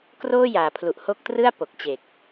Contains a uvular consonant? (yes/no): no